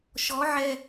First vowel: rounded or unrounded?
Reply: rounded